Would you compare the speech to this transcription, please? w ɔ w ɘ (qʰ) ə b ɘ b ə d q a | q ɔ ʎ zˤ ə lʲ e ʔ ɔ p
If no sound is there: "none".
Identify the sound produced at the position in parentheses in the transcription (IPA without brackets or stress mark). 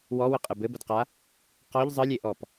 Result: qʼ